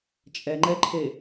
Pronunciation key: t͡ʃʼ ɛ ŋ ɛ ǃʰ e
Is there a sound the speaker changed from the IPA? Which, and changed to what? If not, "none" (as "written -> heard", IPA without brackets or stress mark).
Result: ŋ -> ŋ͡ǃ